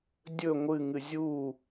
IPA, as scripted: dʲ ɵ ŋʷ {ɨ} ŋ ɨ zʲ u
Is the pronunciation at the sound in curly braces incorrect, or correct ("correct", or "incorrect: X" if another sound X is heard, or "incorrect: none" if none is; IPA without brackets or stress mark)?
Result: correct